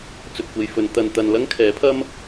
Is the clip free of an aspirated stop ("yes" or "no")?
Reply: no